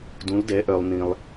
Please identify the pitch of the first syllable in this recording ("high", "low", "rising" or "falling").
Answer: rising